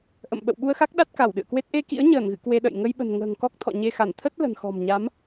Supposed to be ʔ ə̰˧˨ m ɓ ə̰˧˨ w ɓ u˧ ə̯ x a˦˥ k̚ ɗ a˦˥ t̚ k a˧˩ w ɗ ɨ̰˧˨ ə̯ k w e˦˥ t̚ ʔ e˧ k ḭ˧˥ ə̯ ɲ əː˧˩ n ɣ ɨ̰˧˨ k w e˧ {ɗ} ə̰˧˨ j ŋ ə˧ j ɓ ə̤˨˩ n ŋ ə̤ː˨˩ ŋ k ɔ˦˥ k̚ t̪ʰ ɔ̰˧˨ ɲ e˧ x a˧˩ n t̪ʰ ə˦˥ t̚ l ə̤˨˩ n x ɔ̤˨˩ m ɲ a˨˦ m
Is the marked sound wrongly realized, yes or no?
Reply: no